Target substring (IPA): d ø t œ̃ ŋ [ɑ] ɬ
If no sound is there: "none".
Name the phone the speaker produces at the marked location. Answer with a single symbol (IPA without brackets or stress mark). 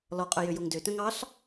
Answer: ɑ